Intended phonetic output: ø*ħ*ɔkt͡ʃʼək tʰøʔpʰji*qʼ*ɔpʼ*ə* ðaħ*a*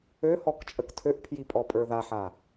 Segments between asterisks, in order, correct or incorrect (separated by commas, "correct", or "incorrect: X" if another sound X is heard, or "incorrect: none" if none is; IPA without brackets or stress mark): incorrect: h, incorrect: pʼ, incorrect: ə˞, correct